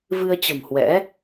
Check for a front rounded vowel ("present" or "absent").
absent